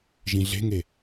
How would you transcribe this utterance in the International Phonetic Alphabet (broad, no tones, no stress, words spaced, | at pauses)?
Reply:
ʒĩɮe̤ŋe